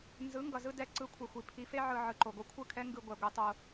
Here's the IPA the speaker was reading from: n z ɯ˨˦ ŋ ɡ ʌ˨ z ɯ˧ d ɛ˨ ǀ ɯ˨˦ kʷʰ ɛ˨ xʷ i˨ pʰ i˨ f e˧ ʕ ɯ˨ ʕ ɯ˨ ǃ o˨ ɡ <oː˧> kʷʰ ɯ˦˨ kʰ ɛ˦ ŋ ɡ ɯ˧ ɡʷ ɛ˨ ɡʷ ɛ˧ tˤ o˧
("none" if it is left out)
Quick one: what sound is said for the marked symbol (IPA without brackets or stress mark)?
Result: o˧